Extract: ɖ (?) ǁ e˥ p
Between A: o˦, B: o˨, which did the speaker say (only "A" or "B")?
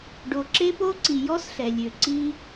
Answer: B